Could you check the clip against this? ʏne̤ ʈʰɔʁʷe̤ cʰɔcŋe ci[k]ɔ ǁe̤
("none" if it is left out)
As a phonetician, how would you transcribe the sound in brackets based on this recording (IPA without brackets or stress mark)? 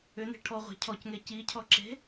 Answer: cʰ